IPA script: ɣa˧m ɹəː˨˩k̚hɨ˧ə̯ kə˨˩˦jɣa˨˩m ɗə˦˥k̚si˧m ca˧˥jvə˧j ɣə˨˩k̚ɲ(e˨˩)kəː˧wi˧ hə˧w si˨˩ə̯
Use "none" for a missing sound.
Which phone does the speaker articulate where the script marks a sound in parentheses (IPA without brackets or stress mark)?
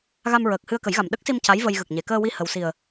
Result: e˨˩˨